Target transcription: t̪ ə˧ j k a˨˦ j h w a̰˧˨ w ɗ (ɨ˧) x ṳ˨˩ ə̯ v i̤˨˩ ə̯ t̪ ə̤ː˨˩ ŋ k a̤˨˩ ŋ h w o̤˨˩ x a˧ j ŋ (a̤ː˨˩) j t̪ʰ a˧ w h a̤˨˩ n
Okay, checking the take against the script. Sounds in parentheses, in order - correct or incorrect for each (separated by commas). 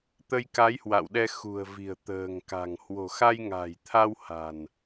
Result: incorrect, correct